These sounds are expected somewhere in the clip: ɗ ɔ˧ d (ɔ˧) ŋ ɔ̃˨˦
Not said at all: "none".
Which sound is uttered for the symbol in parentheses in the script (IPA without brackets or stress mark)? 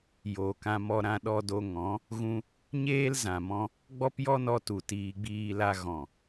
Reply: o˧